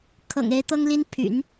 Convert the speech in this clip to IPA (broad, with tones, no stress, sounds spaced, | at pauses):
kʰ ɤ̰˨˩ ŋ e˧˥ ɪ̯ t̪ ɤ˥ ŋ l i˥ n pʰ y̰˨˩˦ n